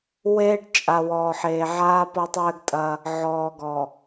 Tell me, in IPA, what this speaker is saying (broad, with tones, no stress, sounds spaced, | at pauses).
w eː˦ ɖ t͡ʃʼ a˨ w ɔː˨ ħ eː˨ ʕ aː˦ p ɔ˦ tˤ ɘː˦ ɡ tʼ ɐ˦ | ʕ ɔː˨ ɡ ɔ˨